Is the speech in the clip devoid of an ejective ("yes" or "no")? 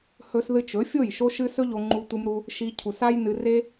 yes